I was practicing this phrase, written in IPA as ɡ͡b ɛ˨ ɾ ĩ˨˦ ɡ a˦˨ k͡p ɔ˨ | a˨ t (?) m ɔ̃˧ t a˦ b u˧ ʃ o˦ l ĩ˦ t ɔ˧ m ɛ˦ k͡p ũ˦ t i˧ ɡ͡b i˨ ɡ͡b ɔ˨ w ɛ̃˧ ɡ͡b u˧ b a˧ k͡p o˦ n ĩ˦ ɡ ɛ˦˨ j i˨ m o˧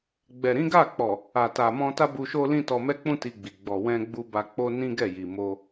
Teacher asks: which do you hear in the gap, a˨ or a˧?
a˨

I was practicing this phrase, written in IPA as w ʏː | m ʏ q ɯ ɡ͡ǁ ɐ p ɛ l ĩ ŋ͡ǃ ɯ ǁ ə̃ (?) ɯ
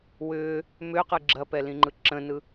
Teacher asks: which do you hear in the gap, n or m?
n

